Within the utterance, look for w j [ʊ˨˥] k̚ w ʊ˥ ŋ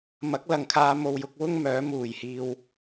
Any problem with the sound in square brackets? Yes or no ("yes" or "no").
no